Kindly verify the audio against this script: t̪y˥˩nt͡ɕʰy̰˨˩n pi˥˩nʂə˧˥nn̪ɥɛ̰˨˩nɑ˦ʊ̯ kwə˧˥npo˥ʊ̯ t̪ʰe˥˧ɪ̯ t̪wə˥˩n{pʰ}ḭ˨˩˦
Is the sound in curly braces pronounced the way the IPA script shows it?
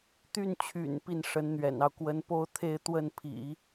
yes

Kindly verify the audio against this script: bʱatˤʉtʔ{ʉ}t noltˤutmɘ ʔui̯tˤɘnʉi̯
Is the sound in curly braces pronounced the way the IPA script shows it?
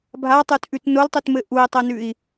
yes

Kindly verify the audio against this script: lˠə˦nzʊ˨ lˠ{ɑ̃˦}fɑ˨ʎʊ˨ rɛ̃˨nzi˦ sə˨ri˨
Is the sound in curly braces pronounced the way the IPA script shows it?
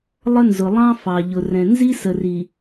yes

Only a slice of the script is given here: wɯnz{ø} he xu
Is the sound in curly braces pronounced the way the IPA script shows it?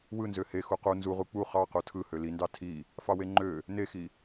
yes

